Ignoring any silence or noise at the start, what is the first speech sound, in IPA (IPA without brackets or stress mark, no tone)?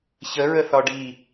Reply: ç